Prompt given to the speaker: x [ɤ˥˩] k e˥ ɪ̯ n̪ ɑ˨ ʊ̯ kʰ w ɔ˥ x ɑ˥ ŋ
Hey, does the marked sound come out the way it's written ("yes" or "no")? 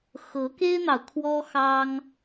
no